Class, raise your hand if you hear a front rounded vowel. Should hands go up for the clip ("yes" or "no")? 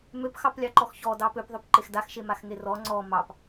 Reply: yes